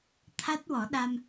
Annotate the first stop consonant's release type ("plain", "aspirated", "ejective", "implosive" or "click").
aspirated